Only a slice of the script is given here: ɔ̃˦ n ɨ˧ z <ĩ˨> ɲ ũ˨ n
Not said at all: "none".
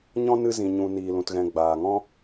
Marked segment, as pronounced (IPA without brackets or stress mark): ĩ˨